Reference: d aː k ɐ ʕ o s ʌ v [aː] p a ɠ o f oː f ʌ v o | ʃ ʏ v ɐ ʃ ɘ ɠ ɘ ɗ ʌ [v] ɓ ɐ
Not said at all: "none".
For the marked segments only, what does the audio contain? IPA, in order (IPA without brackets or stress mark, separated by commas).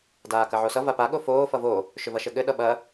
a, none